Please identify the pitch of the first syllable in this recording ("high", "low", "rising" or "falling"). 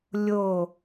falling